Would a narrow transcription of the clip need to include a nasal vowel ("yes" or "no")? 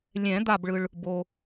yes